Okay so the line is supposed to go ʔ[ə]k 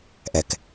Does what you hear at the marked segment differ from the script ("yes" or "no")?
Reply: yes